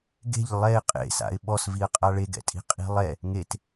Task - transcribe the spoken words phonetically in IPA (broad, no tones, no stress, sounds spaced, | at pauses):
ɡ e̤ ʎ lˠ ɛ ɪ̯ qʼ ḛ s a̰ ɪ̯ ɓ ɔ s v i ə̯ qʼ a ɭ e ɡ ɛ̰ tʼ i̤ qʼ i̤ lˠ ɛ | ŋ e t